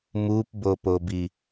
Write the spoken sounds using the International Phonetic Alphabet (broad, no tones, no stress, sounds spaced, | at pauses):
m u p b o p o b i